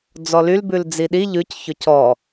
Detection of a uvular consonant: absent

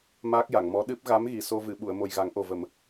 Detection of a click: absent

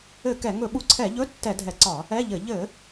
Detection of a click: present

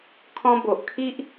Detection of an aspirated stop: present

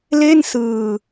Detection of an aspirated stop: absent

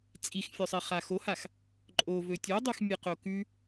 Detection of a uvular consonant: present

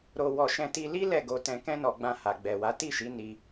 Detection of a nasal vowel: present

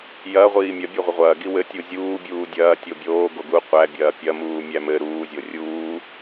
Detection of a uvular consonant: present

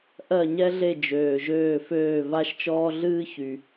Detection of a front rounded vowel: present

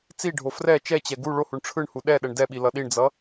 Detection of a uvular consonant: absent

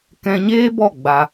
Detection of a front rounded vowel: absent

